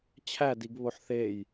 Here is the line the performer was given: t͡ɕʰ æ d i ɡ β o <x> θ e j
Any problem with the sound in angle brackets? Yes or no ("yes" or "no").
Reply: yes